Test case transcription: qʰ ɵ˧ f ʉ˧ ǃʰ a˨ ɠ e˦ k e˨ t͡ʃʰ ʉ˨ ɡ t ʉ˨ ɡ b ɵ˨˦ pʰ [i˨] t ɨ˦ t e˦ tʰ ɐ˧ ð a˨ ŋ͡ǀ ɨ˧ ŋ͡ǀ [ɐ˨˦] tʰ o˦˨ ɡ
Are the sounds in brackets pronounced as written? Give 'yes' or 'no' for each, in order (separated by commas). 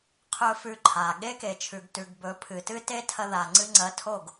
no, yes